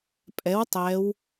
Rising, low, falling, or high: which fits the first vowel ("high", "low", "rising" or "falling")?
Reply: rising